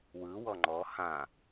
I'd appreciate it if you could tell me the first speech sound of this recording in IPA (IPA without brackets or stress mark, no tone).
w